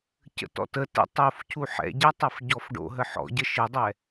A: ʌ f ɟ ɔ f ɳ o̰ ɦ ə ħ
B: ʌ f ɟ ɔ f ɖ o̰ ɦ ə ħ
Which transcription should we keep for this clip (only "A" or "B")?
B